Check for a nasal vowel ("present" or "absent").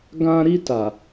present